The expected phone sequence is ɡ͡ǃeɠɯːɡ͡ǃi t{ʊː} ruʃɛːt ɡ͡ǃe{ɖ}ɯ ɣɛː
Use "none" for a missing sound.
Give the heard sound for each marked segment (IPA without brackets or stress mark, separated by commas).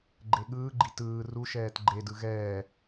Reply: ɯː, d